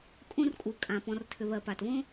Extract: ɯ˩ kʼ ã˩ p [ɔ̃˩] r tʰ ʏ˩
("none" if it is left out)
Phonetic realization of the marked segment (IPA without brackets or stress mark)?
ɔ̃˩